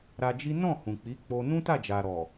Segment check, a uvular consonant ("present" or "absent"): absent